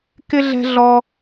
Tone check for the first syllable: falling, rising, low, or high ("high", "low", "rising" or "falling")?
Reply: high